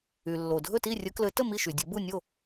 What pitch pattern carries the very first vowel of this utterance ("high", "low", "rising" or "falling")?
low